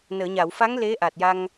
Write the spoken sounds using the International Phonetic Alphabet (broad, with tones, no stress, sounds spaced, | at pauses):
n əː˨˩˨ ɲ a˨˩˨ w f a˧˥ ŋ l e˧˥ ʔ a˨˩ t̚ j a˧ ŋ